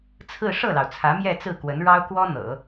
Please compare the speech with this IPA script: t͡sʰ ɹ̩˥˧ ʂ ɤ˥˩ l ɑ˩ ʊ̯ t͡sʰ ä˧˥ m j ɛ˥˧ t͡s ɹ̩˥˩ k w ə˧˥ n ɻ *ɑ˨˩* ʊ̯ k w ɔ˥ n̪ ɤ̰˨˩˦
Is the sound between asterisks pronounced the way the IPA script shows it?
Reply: no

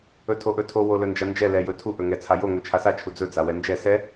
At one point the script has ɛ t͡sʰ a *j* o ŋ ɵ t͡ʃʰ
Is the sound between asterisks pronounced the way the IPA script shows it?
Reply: yes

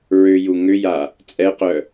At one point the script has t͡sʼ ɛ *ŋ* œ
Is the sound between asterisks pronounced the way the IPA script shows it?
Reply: no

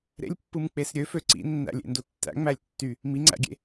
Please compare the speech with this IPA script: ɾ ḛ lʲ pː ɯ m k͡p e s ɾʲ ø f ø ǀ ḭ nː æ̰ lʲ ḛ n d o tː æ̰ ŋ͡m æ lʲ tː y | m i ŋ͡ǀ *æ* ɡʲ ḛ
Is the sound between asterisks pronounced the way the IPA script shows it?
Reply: no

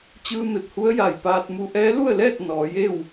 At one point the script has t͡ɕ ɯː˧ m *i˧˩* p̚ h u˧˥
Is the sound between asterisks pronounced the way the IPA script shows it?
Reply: no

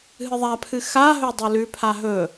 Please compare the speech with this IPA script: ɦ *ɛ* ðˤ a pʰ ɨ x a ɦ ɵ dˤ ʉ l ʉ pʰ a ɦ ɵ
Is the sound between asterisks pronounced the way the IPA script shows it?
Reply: no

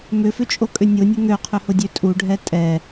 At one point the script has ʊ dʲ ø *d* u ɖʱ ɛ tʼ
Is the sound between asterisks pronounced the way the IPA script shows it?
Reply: no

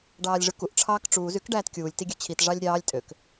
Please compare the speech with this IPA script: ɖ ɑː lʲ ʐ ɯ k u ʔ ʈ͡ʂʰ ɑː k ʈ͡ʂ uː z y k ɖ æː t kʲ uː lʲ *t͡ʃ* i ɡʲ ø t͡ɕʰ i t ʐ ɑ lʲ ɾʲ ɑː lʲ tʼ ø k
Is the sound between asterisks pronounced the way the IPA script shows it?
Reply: no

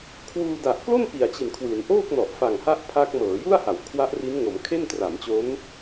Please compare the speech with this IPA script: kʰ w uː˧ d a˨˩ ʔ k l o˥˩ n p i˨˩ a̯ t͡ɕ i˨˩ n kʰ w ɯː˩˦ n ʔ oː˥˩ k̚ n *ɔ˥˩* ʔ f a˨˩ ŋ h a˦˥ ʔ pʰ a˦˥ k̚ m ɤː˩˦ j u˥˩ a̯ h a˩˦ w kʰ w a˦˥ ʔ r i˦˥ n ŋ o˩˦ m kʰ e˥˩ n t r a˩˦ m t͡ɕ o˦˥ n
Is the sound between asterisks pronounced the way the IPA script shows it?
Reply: no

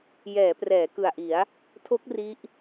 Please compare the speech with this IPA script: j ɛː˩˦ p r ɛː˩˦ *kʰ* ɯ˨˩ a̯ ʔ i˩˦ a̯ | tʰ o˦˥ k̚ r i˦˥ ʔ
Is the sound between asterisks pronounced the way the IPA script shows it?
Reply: no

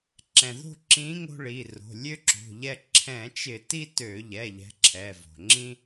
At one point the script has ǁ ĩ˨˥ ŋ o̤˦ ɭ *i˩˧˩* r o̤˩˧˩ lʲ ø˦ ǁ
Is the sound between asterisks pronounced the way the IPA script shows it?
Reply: yes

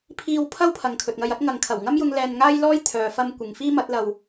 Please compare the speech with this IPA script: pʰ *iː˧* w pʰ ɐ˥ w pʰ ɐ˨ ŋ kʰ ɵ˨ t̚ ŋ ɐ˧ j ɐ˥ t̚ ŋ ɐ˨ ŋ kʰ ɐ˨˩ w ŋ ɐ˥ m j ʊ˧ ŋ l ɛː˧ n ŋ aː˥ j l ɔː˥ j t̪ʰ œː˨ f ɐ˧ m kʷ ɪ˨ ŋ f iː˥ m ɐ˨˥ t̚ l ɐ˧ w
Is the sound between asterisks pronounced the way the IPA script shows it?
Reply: yes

